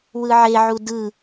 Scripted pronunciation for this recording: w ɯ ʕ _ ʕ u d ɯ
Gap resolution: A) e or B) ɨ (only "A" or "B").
A